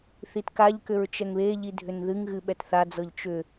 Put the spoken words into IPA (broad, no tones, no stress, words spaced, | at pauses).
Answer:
θitkaʎkʏɹ t͡ʃɛŋβeʎi dʱʏnðɨŋɣɨ ɓɛtθad͡zɤʎ t͡ʃʏ